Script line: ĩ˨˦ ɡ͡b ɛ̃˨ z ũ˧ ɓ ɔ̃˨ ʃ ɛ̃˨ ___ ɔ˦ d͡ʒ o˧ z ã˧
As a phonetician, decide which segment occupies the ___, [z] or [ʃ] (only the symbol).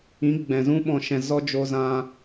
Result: z